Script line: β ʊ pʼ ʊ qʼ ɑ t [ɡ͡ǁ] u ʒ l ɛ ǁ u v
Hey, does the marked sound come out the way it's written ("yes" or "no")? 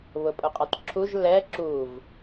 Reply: no